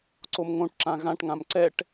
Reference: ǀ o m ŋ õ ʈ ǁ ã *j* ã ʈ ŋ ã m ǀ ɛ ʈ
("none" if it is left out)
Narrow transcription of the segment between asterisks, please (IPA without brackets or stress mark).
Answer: ɣ